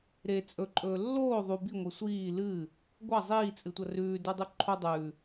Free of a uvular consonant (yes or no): yes